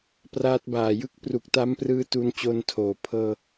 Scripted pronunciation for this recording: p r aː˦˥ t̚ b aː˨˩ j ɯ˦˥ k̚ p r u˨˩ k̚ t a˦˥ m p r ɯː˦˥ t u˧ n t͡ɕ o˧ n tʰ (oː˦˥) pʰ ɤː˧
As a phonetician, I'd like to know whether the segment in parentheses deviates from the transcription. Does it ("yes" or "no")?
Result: yes